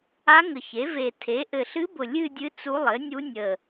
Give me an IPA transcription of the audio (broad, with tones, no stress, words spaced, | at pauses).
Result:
a˧˥ŋə˨˩ çe˩˥ ve˨˩ tʰe˩˥ ʔɘ˨˩ɬɨ˧˥bʊ˨˩ lʲɨ˥˧dʲɨ˧˥ t͡su˧˥lˠɘ˩˥nʲu˧˥ nʲə˨˩